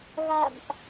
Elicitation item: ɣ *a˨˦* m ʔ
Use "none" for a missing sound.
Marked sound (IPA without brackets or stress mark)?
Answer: a̰˧˨